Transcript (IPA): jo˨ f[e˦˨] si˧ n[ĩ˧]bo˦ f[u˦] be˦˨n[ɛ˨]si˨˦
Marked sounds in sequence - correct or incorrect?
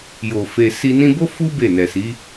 incorrect: e˨, correct, correct, correct

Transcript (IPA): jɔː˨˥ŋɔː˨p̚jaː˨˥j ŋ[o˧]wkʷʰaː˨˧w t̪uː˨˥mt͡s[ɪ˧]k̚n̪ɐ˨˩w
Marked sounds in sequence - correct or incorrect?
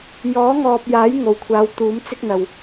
incorrect: o˨˩, incorrect: ɪ˥

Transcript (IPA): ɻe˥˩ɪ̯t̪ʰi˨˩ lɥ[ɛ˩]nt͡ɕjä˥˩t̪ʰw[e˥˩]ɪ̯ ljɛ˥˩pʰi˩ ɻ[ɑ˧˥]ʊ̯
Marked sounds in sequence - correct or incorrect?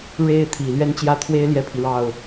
incorrect: ɛ˥˧, incorrect: e˥, incorrect: ɑ˥˩

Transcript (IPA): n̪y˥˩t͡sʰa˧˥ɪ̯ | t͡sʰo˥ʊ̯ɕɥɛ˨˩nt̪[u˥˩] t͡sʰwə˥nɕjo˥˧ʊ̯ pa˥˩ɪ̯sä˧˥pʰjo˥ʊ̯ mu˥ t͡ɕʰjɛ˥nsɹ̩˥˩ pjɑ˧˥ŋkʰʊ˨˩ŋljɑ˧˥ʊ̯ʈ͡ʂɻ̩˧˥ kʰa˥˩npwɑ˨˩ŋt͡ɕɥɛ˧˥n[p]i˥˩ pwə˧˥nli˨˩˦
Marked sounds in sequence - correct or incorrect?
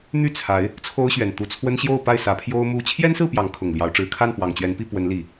correct, correct

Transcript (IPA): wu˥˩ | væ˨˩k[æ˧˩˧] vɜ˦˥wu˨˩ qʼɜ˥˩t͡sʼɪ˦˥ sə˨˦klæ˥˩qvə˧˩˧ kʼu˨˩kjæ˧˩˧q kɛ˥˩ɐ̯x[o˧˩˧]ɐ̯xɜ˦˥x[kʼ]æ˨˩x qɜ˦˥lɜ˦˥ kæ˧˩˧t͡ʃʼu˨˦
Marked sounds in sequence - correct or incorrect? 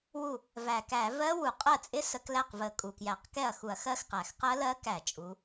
correct, incorrect: u˧˩˧, incorrect: q

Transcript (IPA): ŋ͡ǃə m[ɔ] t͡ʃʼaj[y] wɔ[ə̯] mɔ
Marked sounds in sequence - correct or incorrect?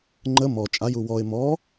correct, incorrect: u, incorrect: ɪ̯

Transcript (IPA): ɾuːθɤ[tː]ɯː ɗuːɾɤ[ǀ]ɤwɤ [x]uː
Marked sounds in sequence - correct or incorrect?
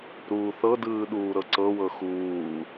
incorrect: d, correct, correct

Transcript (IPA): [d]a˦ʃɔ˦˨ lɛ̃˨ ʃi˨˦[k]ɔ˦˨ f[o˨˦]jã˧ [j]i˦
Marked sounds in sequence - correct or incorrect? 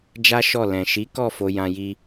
incorrect: d͡ʒ, correct, incorrect: o˧, correct

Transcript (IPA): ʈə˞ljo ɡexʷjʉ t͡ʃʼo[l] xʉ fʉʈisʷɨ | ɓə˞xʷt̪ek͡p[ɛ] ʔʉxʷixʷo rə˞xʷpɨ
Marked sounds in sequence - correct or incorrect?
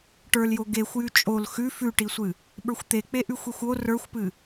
correct, incorrect: e

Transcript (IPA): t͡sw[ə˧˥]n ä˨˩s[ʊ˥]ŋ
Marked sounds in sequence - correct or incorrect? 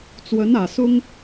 correct, correct

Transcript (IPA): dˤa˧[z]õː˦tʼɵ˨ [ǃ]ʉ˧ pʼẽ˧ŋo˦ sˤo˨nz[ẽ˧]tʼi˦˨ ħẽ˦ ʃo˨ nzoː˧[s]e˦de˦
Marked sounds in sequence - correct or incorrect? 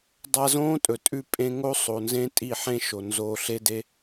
correct, incorrect: tʼ, incorrect: ẽ˦, incorrect: ɬ

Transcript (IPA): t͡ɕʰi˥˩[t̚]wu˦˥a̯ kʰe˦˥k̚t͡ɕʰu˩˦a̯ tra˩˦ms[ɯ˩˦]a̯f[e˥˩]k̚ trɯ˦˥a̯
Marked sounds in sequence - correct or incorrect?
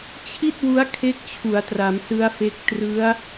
correct, incorrect: ɯ˦˥, incorrect: e˦˥

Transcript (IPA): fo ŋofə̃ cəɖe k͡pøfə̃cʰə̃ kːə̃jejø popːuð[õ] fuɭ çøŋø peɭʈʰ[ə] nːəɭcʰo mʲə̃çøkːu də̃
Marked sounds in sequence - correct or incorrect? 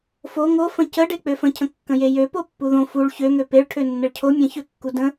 correct, incorrect: ø

